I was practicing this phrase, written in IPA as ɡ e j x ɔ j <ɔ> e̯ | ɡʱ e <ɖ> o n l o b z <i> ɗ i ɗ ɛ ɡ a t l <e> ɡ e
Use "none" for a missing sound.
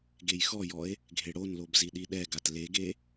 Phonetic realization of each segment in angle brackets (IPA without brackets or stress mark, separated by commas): ɔ, ɽ, i, e